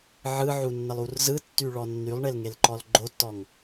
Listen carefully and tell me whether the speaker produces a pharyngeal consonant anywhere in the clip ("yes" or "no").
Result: yes